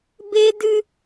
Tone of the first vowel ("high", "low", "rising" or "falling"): high